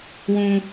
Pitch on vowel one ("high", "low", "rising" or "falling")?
high